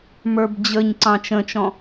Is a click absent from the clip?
no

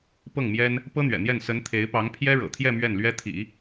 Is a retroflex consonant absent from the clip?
no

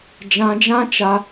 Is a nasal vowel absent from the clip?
no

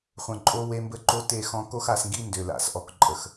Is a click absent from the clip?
no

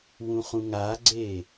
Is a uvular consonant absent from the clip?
no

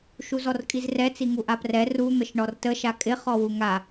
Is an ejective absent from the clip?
no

